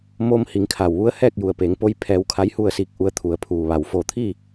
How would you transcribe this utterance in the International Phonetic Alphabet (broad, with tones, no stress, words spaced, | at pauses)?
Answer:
moː˧m hi˩˧ŋkʰa˩wʋu˧˥ə̯ hɛː˥˨k̚ju˩ə̯ peː˩˧ŋpo˧˥j pʰɛː˧wkʰa˧˥jhu˥˨ə̯ siː˧k̚ʔu˧˥ə̯t̪ʰu˩˧ə̯ pʰuː˩ʋa˩w foː˧˩t̪ʰi˥˨